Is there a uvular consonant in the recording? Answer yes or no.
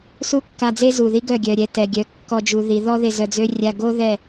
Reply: no